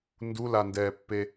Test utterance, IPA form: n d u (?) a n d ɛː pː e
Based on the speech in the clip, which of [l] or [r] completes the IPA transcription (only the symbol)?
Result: l